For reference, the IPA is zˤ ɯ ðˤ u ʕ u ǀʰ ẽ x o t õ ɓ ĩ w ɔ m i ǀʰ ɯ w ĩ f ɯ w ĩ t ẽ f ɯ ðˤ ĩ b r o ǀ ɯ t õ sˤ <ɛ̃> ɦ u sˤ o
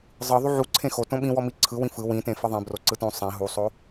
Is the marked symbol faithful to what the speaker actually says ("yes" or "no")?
no